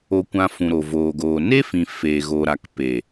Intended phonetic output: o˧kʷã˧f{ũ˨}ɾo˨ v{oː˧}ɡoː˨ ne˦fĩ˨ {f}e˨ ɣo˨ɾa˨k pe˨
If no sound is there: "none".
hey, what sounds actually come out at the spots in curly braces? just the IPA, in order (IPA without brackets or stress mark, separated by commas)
ũ˨, oː˨, f